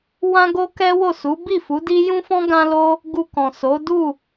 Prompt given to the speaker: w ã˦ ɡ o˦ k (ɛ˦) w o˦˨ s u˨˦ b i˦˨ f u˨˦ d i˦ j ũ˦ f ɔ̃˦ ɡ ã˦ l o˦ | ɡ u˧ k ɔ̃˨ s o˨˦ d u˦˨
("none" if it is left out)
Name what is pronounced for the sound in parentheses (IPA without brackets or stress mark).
ɛ˦